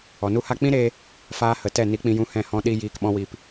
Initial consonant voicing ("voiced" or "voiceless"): voiced